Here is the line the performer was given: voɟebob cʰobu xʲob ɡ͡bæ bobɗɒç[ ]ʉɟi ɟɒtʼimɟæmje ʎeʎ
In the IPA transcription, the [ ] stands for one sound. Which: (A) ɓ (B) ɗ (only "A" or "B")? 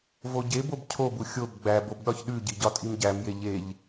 B